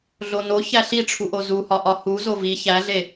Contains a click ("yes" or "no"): no